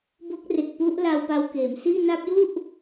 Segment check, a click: absent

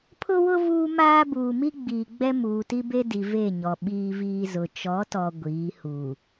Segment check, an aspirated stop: present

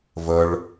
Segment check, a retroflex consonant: present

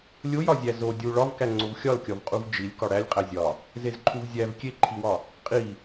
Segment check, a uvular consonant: present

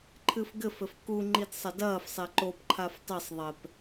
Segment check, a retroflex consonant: absent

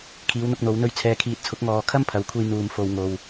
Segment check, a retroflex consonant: absent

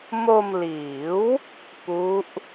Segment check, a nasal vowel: absent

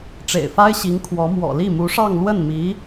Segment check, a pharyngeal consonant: absent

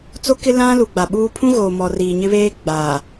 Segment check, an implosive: present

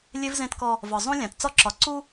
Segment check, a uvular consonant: absent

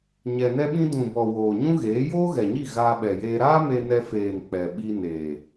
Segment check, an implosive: present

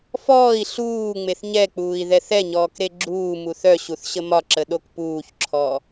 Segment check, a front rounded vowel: present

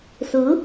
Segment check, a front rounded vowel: absent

